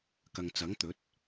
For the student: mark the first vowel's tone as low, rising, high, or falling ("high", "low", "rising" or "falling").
low